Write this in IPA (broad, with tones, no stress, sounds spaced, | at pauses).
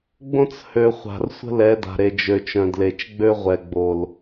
ɡ͡b õ˦ t͡s h ø˨ χʷ a̤˨ r sʷ ə̤˦ l ɛ˨˦ d a̤˨ ɾ e˨ d͡ʒ ø˨ t͡ʃ œ̃˨ d l e˨ t͡ʃ ɡ͡b ø˦ ʁʷ ɛ˨ ɡ͡b o˨ l